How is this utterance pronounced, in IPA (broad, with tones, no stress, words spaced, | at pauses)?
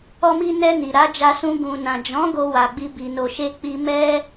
ɔ˧mi˧ nɛ˧ni˨ ɾa˨˦d͡ʒa˧sũ˧ ɡũ˨nã˨ d͡ʒɔ̃˨˦ ɡo˧wa˨ɡ͡bi˧ bi˨no˨ ʃe˧k͡pi˧ mɛ˧